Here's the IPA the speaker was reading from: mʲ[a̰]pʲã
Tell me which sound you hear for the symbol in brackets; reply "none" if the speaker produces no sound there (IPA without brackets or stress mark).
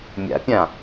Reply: a̰